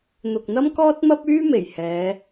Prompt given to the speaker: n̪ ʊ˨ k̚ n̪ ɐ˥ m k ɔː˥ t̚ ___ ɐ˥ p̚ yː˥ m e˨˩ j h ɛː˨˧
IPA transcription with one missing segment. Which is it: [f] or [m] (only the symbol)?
m